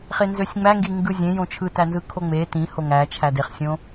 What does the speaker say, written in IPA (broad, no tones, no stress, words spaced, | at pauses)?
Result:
χenzøsʲŋ͡mæŋɡi ŋɡɯzʲẽjõ t͡ʃʰɯtænzɯ kʰoŋ͡me tĩ hoŋæ t͡ʃʰædeχsʲõ